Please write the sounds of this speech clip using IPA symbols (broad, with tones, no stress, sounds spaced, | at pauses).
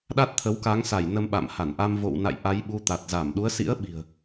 ɗ a˦˥ t̚ t̪ʰ ə˨˦ w k a˨˦ ŋ s a˧˩ j n ə˧ m ɓ a̰˧˨ m h a˧˩ n ʔ a˧ m v o̰˧˨ w n a̰˧˨ j ʔ a˨˦ j ɓ u˨˦ t̪ a˨˩ t̚ z a˧˩ m ɗ u˨˦ ə̯ s ḭ˧˥ ə̯ ɓ i̤˨˩ ə̯